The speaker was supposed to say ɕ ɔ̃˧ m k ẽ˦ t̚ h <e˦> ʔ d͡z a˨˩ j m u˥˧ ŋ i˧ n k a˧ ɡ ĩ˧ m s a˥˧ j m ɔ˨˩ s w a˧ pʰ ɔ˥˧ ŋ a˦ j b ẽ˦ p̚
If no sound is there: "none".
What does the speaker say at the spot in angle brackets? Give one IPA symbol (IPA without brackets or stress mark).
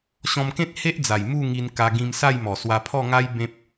e˦